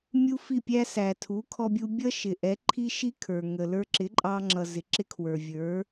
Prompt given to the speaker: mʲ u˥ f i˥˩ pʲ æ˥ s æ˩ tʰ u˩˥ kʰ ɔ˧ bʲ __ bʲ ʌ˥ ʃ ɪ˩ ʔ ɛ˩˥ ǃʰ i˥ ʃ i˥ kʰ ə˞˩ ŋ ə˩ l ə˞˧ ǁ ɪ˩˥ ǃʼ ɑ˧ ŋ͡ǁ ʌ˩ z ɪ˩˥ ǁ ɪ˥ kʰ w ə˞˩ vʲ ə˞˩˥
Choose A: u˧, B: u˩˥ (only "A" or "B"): A